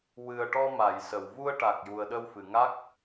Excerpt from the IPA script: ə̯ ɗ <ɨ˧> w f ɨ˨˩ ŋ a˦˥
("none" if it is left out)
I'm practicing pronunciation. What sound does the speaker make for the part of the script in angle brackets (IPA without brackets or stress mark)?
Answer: ə˧